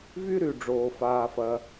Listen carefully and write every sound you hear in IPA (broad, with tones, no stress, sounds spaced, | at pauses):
v y˥ ɾ y˩ ɖ͡ʐ oː˩ f aː˩ f ɐ˩